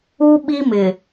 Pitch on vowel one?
high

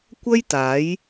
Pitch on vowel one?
high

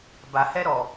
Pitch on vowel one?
low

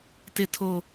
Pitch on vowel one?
low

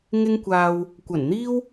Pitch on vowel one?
high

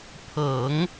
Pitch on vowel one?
low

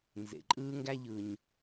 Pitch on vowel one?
low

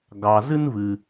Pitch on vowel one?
low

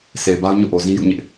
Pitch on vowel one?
low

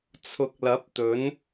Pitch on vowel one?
rising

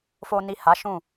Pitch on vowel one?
low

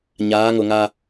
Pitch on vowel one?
rising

